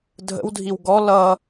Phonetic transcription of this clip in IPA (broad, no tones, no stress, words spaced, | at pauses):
dʱə̰wdʱiw ɡɔ lʌ